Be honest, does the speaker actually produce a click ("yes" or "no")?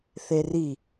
no